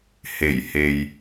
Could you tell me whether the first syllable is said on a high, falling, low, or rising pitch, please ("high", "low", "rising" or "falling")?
low